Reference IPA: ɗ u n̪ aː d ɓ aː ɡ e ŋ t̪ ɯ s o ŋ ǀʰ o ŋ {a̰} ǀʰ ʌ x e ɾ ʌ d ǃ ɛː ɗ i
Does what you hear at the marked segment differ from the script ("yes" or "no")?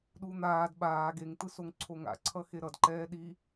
no